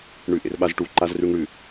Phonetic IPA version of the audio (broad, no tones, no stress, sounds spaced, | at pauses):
ɳ ʉ ʔ ḛ r ɓ a z ʈ u ǃ a z r ʉ ŋ ɽ ʉ